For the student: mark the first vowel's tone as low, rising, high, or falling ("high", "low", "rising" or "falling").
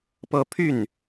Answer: falling